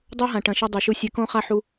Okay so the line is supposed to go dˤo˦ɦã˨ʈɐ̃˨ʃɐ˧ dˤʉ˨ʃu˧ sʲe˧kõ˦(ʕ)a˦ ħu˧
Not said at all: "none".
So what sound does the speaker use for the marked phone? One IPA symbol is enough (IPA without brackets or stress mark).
χ